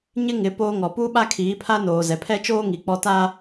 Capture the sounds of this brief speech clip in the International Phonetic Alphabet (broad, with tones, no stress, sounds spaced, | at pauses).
ɲ ɪ˦ ŋ ɪ˨˦ p oː˦ ŋ ɔ˨ p u˦ ɓ a˦ kʰ iː˨˦ pʰ a˦ n oː˨ z ɛ˨ pʰ ɛ˦ t͡ʃ oː˦ ŋ i˨ k͡p ɔ˦ t aː˦